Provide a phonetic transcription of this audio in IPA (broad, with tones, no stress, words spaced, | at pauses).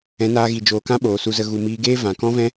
ɛ̃˨˦naː˧ɣi˨ d͡ʒoː˨kã˦ ɓoː˨su˧zə˧ ɣu˨miː˧ɡeː˦ vã˨ kɔ̃˦vɛ̃˦